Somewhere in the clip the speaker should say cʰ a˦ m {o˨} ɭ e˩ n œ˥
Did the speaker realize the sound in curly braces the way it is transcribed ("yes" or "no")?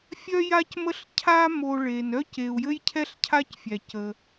yes